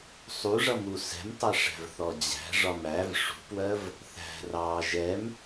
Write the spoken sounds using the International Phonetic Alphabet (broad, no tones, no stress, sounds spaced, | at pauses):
sˤ u ʐ ʌ m u s ɛ̤ m tˤ ɜ ʂ æ̤ v θ ɔ d͡ʑ æ̤ ʐ ɒ m æ v ʂ ṳ p w ɜ v | θ æ̤ r ɑː ʒ ɛ m